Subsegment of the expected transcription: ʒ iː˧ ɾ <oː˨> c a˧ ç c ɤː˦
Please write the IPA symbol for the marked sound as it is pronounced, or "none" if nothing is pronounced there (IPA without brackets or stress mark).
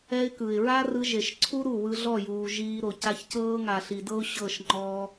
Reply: o˨